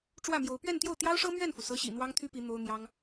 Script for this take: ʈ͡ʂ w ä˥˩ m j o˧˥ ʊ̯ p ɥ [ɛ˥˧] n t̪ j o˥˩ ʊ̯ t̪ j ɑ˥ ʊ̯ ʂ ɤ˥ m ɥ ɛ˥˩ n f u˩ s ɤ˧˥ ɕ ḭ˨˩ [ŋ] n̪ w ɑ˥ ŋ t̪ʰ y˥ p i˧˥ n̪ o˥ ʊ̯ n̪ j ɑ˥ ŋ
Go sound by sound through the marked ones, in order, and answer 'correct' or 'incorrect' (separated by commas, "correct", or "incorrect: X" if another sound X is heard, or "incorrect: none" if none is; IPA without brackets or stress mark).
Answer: correct, incorrect: none